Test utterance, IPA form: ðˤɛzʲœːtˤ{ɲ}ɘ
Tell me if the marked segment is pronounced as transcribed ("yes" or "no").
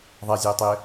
no